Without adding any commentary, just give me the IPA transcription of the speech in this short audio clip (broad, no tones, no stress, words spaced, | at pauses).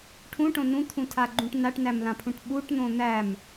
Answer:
ʈʰũʈõ nũt̪ʰũtʰaɡ͡ǃũʈ naʈnæmlãpʰũʈ ɓuʈn̪õ n̪æm